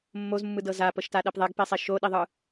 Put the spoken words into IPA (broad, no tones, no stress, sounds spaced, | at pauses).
mː o z mː ɯ d ɤ z a p ɤ ʃ t a ɗ ɛ p ðˤ ɛ ɡ p i sˤ e ʃ o ɗ i ðˤ ɯ